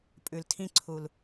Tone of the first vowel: low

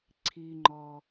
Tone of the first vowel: high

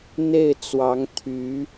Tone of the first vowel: falling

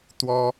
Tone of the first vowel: high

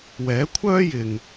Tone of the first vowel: rising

